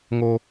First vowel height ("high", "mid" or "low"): mid